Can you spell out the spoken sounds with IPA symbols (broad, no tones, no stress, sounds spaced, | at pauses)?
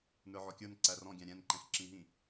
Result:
n ə˞ ʕ ɔ kʲ ə˞ n ǀ æ r ɔ̃ ɡʲ æ̃ ɾʲ ɛ̃ n ǃ ɛ̃ x ǁ ĩ ɦ ĩ